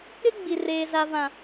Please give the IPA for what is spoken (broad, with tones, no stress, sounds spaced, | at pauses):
k ɪ˦ ɡ͡b i˨ r eː˨ z a˨ v ã˨